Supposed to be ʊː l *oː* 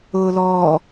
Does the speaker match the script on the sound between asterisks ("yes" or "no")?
no